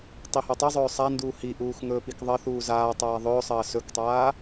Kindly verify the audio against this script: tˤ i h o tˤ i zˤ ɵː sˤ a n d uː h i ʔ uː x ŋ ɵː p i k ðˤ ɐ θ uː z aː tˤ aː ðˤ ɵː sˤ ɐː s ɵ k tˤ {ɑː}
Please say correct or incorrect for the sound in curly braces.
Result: incorrect